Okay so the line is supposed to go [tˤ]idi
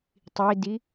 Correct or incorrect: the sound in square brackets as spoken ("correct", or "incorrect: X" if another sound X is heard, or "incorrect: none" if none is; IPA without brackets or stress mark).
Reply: correct